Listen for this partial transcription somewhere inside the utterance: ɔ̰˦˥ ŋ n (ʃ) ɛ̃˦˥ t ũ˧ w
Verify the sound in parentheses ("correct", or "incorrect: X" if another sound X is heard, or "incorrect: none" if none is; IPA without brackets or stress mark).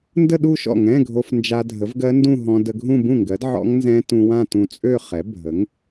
incorrect: z